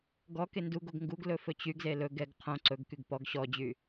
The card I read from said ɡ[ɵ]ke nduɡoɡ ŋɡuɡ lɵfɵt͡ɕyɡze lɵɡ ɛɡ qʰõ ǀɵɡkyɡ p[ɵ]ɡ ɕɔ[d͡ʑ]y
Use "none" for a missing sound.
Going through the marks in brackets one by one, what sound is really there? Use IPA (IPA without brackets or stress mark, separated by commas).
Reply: ɔ, ɔ, d͡ʑ